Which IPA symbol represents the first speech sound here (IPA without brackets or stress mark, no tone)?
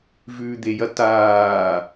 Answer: v